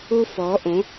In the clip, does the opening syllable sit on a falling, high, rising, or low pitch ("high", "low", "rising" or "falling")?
high